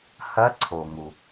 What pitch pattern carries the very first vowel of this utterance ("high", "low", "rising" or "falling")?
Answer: rising